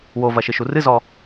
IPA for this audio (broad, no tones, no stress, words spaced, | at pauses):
wovɐʃɨʃu rɨzɔ